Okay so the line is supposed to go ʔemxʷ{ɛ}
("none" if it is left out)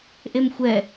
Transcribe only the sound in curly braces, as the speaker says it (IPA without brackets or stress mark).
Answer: ɛ